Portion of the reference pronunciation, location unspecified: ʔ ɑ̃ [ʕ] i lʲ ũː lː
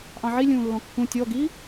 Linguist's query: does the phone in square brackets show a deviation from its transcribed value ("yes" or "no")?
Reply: no